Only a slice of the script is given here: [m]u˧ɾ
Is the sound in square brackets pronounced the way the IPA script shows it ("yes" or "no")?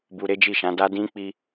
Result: no